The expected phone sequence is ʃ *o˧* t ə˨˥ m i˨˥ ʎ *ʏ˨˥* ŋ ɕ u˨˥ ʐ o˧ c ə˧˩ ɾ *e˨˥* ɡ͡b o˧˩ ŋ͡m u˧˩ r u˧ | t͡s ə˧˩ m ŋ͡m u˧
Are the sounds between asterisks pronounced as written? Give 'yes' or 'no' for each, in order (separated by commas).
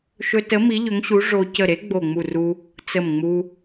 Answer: no, yes, yes